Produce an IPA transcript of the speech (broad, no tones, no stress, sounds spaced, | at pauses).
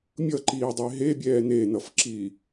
mʲ ʌ ǃ iː dˤ e ɦ e bʲ ɛː n e n ʌ f ǁ iː